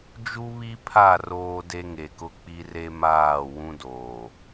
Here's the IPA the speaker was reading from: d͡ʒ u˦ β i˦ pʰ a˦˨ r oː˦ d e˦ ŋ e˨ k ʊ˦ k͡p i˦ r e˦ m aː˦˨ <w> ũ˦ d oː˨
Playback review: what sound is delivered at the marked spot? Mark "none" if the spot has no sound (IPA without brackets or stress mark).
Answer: w